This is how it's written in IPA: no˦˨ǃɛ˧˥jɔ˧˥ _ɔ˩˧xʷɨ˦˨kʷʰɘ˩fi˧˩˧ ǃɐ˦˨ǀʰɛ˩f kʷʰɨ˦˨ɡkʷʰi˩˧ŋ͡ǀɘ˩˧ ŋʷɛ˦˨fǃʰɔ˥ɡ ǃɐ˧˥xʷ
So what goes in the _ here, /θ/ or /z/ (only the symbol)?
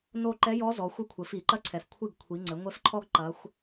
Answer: z